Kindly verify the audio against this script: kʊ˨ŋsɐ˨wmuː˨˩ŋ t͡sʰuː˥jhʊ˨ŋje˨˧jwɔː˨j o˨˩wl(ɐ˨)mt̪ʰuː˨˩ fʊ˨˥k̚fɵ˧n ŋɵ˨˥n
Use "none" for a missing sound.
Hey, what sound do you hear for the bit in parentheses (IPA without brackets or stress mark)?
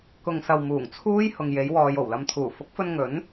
ɐ˨